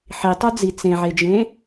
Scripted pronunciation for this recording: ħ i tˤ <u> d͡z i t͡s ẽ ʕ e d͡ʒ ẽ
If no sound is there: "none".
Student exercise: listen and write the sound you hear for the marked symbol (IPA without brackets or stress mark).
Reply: u